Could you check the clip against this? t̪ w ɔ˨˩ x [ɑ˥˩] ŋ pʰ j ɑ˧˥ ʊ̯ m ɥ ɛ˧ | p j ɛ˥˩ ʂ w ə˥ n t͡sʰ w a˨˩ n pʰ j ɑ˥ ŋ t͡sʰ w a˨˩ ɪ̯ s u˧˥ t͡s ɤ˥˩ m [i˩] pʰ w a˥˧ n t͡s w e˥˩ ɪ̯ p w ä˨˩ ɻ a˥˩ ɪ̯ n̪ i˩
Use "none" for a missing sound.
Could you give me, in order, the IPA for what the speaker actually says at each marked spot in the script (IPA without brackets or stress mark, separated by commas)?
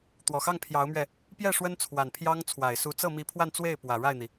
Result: ɑ˥˩, i˧˥